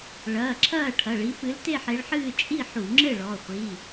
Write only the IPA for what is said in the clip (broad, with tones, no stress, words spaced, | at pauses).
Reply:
ɭɐː˩˧˩ǁʰɐː˥˨ʈʰɐ˩˧˩ɭi˨˦ fɨ˨˦lte˥˨ħe˨˦ɭħɨː˥˨ t͡ʃʼi˥˨ħu˧˩˧ŋ͡ǁɘ˥˨ ɭɔ˩˧˩χʷi˩˧˩